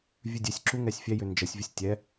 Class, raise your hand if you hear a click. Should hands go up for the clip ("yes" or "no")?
yes